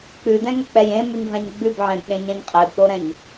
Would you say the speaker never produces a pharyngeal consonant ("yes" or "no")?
no